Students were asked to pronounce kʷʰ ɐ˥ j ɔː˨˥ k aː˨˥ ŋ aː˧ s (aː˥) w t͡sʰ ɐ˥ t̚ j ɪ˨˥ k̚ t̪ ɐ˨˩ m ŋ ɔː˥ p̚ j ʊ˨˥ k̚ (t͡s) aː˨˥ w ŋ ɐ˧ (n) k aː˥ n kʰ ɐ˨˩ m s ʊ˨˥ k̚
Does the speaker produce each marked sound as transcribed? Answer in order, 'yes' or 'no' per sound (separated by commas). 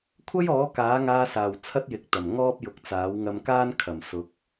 no, yes, no